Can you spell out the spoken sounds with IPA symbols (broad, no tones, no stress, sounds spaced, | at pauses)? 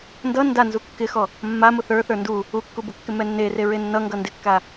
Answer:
n d ʌ n d a n z u kː ɪ x ɔ | mː a m ʊ θ ə˞ θ ə˞ n d u | u kː u b ʊ kː ɪ m ɛ nː e r e ɹ e nː ʌ ŋ ɡ ʌ n d ɪ kː a